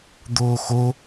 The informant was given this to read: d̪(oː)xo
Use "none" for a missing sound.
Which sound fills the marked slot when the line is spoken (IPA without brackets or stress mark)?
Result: oː